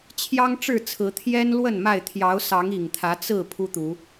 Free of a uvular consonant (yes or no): yes